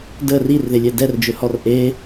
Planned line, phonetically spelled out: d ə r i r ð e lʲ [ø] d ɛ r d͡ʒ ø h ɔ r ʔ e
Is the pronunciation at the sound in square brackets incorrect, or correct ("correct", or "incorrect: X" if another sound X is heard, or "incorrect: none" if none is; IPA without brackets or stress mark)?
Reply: incorrect: ɛ